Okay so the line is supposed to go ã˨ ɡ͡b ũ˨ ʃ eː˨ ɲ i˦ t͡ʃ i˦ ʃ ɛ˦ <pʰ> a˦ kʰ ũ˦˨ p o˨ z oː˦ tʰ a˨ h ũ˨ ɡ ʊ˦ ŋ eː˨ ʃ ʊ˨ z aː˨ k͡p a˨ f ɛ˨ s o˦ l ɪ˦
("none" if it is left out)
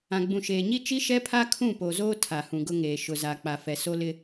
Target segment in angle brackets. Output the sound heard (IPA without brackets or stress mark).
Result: pʰ